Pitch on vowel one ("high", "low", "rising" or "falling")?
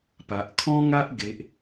low